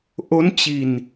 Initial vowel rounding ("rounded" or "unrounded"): rounded